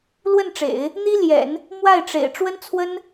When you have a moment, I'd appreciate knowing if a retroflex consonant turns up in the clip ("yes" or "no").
yes